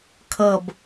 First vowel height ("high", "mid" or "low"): mid